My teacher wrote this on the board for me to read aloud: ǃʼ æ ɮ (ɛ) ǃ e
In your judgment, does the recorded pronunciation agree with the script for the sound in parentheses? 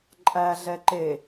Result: yes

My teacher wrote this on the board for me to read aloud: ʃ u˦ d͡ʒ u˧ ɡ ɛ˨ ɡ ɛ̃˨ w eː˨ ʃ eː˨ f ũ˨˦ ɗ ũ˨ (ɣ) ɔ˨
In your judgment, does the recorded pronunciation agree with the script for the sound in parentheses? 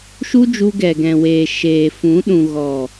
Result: yes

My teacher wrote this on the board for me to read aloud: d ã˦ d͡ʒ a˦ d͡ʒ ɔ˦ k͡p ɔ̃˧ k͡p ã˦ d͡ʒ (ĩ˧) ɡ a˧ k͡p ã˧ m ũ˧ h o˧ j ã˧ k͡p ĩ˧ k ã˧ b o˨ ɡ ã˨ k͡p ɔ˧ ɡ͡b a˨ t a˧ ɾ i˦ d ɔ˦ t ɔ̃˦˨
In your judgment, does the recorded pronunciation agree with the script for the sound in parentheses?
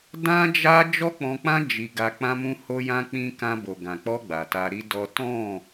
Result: no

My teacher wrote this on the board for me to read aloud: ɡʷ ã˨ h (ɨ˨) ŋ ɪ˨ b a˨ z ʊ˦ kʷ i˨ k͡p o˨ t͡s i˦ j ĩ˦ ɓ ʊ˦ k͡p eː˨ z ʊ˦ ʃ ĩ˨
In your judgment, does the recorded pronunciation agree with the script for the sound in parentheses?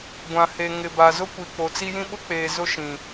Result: no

